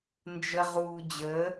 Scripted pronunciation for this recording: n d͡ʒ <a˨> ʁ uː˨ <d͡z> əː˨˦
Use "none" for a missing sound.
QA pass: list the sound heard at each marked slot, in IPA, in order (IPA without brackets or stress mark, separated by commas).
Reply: ə˨, d͡ʑ